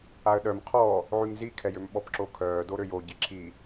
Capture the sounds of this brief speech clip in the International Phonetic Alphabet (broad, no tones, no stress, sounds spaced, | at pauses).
a ə̯ ɗ œ m qʰ ɔ | ʕ y ŋ z i kʰ ɛ j ø m ɓ ɔ p ǁ o kʰ œː d o ɾ ø j o ɟ i ǁʰ i